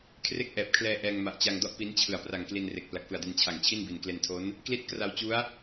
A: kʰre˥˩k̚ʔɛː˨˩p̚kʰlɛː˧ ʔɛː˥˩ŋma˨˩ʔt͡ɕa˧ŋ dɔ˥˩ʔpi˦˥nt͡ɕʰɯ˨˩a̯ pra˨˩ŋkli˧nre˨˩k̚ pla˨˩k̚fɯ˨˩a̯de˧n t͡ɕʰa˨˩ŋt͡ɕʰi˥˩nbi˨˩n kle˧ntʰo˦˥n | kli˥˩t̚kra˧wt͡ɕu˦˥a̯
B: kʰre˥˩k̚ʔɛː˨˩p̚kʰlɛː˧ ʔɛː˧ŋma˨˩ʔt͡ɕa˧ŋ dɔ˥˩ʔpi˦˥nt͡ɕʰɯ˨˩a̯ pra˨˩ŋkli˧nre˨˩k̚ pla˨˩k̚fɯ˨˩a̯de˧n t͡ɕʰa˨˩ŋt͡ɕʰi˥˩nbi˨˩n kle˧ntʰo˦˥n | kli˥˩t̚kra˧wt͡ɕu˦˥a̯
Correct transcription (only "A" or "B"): B